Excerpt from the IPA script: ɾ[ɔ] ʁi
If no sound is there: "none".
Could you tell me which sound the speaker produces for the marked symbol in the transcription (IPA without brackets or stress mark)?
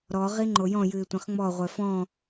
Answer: ɔ